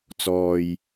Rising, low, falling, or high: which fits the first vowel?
low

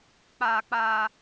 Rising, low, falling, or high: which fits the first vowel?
high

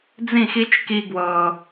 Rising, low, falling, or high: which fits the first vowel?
falling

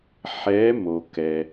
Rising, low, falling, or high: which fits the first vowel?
rising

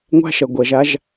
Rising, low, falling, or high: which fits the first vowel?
high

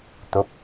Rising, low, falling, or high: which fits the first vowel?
rising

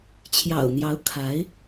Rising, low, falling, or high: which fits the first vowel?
low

